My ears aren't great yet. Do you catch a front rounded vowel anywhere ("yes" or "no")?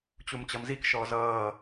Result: no